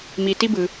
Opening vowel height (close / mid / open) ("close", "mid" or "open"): close